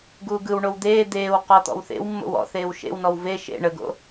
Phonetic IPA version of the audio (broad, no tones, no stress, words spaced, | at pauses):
ɡuːɡɯw ɳowd̪eː d̪eːw qɔt̪ɔ̰wθḛwmːo̰w ɔ̰θeːw ʃḛwnɔw ve ʃḛ ɳəɡo̰